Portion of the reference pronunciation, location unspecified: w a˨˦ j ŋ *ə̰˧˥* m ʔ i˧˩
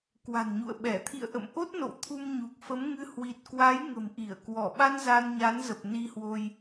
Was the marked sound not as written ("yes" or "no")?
yes